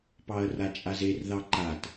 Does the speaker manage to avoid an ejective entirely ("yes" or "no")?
no